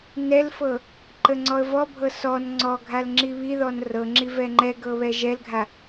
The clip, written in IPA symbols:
nɛlfɤ | ǃəŋ͡ǀɔə̯vɔbʱɤ sɔn ŋ͡ǀɔɡʱal ŋ͡ǁiβiðɔn rɤŋ͡ǁi vɛŋ͡ǃɛɡɤ βɛʒɛlɡʱa

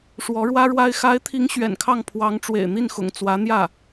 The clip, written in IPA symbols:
ʂwɔ˧˥ɻwä˥ɻwa˥ɪ̯ xa˧˥ɪ̯t̪ʰi˧˥ŋ ɕɥɛ̰˨˩nkʰɑ˥˩ŋ pʰwɑ˧˥ŋʈ͡ʂwḛ˨˩ɪ̯n̪i˥˩nxʊ̰˨˩ŋ t͡swä˧˥n̪jä˥˩

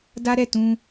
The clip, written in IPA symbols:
da˦ ɾɛ˦˨tũ˧

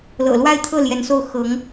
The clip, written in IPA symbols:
lɤ̰˨˩lwa˥˧ɪ̯t̪ʰɤ˥˩ ljɛ˧˥nso˥˩ʊ̯ xɤ˧˥ŋ

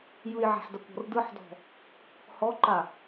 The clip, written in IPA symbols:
jɯjʕa̤ħdakʷɔ̤r dɯħdɔ̤ | hɔǃa

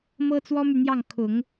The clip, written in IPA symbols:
mɤ˥t͡swɔ˥my˨n̪jɑ˥˩ŋ kʰʊ˨˩˦ŋ

